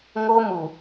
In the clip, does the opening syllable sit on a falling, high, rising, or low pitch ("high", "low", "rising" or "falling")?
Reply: high